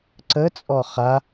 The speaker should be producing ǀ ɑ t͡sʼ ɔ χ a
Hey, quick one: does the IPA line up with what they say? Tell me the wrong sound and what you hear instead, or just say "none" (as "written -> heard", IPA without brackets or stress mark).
ɑ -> ə